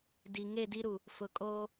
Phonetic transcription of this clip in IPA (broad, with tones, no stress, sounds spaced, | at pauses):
d i˨ ŋ e˦˨ d i˦ ɾ u˨ | f ʊ˨ kʼ oː˦